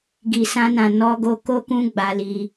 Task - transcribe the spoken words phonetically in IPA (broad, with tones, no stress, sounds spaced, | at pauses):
ɡ i˨ s ã˧ n ã˨ n ɔ˧ ɡ o˧ k o˦ k ũ˦ ɡ͡b a˧ l i˧